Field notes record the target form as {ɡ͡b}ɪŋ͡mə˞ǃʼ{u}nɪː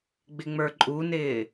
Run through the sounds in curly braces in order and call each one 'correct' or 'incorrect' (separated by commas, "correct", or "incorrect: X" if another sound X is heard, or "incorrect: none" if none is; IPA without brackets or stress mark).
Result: correct, correct